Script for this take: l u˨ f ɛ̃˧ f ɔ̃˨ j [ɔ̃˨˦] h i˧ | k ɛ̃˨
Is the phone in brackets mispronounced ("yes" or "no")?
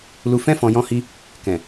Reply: yes